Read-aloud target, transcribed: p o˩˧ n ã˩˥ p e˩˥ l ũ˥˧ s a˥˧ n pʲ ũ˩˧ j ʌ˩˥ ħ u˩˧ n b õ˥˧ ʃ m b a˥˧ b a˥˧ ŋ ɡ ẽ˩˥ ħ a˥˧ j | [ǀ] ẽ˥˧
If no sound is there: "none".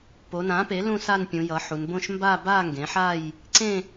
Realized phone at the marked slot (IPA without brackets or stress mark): ǀ